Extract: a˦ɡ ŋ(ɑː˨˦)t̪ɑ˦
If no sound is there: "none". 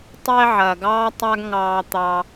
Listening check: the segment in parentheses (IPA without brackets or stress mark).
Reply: ɑː˦